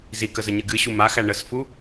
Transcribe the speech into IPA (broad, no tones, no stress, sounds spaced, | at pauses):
z i k ə z ə ɲ ɨ ɡ ɨ ɕ u m a x æ ɳ ə s f u